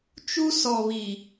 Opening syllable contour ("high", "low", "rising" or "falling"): high